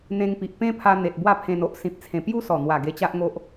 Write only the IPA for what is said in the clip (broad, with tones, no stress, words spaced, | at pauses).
n̪ẽ˧ŋpi˨ʔpẽ˦pʰa˧ n̪e˨t̚bwa˥˧pʰẽ˧no˦ʔ sĩ˨p̚t͡sʰẽ˨˩ pju˦ sɔ˨˩n̪wa˨˩ ɡe˧t͡ɕa˦ʔŋo˦ʔ